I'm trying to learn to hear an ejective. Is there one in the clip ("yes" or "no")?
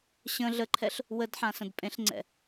yes